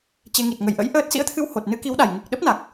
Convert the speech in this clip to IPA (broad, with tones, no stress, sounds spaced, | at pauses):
t͡ɕ e˧ ŋ i˨˩ t̚ ŋ ə˨˩ j ʔ ə̰˧˥ j ʔ əː˦˥ t̚ s ḭ˧˥ ə̯ t̪ʰ ɨ˧ w h o˨˩ t̚ n ɨ˨˦ k i˨˦ w ɗ a˨˩ j ŋ ɨ˨˩ k̚ ɗ ə˦˥ p̚ n a˨˩ k̚